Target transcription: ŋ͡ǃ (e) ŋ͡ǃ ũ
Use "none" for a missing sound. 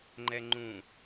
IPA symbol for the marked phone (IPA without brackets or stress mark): ɛ